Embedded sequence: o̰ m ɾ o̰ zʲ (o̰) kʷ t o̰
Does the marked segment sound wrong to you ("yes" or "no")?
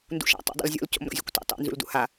yes